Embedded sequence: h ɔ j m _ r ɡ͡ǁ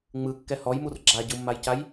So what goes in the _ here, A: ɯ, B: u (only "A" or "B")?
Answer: B